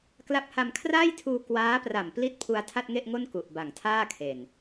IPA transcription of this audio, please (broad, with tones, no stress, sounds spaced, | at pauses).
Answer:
k l a˦˥ p̚ h a˧ m kʰ r aː˥˩ j tʰ uː˧ k w aː˦˥ p r a˨˩ m p l i˦˥ t̚ pʰ u˧ a̯ tʰ a˥˩ t̚ ŋ e˥˩ ʔ ŋ o˥˩ n k u˨˩ ʔ b a˨˩ ŋ tʰ aː˥˩ kʰ e˨˩ n